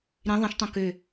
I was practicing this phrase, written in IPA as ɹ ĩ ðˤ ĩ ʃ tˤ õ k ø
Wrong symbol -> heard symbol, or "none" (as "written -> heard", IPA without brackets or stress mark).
ɹ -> ɾ